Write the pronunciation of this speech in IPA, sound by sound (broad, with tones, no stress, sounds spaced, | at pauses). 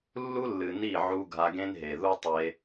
lː u˦ lː ɨ˨ n i˦˨ ʕ u˧ ɡʱ a˧ ɡ ẽ˦ n ɦ e˨ ð u˦ tˤ e˧